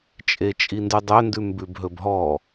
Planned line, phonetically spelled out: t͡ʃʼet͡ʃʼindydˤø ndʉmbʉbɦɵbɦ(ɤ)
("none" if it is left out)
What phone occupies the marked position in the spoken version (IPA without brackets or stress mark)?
ɔ